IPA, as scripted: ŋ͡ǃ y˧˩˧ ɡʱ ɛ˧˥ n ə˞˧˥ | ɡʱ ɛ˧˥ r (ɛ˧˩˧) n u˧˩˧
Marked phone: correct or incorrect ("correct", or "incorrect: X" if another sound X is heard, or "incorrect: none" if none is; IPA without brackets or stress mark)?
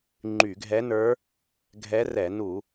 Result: correct